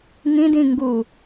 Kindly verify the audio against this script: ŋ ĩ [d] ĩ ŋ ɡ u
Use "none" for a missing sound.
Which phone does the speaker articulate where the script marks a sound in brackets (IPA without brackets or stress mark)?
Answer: d